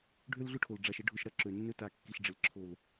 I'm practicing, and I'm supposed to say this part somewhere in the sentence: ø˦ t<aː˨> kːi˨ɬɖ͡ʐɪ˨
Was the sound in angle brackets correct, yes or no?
no